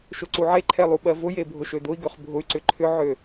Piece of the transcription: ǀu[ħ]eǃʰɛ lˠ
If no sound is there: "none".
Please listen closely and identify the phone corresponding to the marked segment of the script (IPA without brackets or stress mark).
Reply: ʕ